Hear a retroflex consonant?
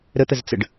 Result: yes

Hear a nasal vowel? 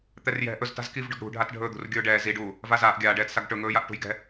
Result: no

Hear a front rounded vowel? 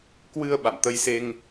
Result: no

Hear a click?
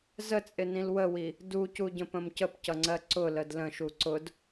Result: yes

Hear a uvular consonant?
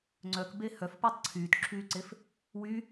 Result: no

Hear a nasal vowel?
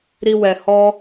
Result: no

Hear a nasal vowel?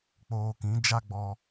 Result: yes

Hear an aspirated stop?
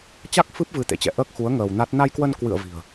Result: no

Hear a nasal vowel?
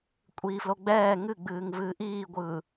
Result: no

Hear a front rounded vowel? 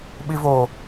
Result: no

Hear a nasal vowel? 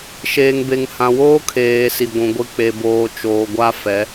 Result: yes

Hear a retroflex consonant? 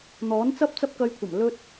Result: no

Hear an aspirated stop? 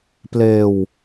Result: no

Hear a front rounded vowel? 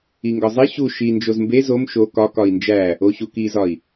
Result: no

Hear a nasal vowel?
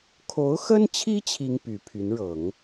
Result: no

